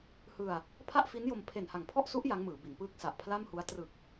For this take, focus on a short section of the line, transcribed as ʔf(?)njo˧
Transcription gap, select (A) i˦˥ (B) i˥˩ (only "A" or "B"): A